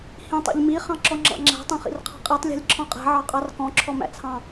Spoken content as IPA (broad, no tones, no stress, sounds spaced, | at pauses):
h ĩ tˤ ḭ ʎ m i χ ɑ̃ ǁ ɔ ŋ͡ǁ ɑ̰ ŋ͡ǁ æ̤ tˤ ɛ̃ χ ḭ r qʰ ɑ̤ qʼ ɛ tˤ lʲ æ̤ lʲ ǁʰ ɔ̃ qʼ æ̤ ʕ ɑ qʼ ɑ r k ɔ̃ ǁʰ ɔ m æ̰ t͡sʰ ɑ̃